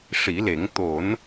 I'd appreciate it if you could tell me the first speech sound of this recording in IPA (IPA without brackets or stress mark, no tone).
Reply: ʂ